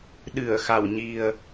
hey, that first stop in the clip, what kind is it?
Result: implosive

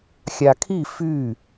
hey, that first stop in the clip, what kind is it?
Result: aspirated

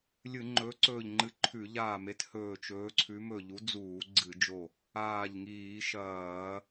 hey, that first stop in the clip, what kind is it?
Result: click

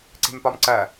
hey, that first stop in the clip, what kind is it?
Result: click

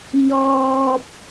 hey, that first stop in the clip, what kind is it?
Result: plain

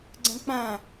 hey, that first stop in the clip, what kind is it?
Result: click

